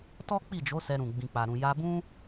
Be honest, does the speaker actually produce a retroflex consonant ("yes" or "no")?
no